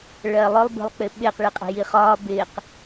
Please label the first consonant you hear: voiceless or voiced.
voiced